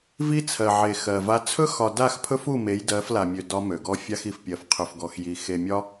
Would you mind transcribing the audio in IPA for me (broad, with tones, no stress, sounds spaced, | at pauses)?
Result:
v i˦ t͡sʰ ɜ˨ ʕ e˨ x ɜ˨ v a˦ t͡sʰ ɵ˦ x ɒ˨ d a˦˨ x pʰ ɵ˦ f u˦˨ m e˨˦ j d ɜ˨˦ f l a˨ mʲ ø˨ d ɒ˦ m ø˨ ɡ ɔ˦ fʲ a˦ x i˨ f pʲ ɜ˨ f qʰ ɵ˨ f ɡ ɔ˨ x j i˨ x e˨ mʲ ɒ˦